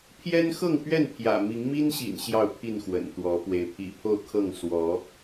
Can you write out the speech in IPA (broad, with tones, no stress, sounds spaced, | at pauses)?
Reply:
pʰ j ɛ˦ n x ɤ˥˨ ŋ p ɥ ɛ˥˨ n pʰ j ä̰˨˩ m i˨˦ ŋ m i˦ n ɕ ḭ˨˩ n ɕ j ɑ˥˨ ʊ̯ pʰ i˥˨ n x w ə̰˨˩ n t̪ w ɔ˨˦ p w e˨˦ ɪ̯ pʰ ḭ˨˩ pʰ o˥˨ ʊ̯ kʰ ɤ˥˨ ŋ s w ɔ˨˦